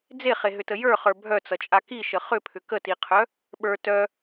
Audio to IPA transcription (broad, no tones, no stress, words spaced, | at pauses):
d͡zeχeɦʏtə jə˞χə˞ bʱœt͡sʌt͡ʃʼa kiʃə χʏpʰʏ kətiqʰœ | ɓə˞ tœ